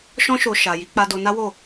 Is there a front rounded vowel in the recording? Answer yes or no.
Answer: no